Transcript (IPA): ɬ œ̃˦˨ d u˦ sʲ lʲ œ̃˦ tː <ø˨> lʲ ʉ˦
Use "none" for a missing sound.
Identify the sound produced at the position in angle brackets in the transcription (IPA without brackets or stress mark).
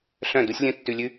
ʉ˨